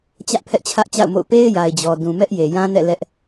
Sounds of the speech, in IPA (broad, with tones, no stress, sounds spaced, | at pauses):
t͡ɕ ä˦ ʔ pʰ ɛ˦ ʔ t͡ɕʰ ä˦ ʔ t͡ɕ a̰˦˨ ʊ̯ m o̰˦˨ ʊ̯ p e˦ ɪ̯ j a˨ ɪ̯ d͡ʑ ɔ˨ d ũ˨ m ɛ˦ ʔ j e˨ j ã˦ n ɛ̰˦˨ l ɛ˦ ʔ